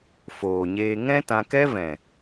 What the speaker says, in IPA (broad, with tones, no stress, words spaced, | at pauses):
foː˨ɲeː˧ ŋɛ̃˦tã˧kɛ˦vɛ̃˨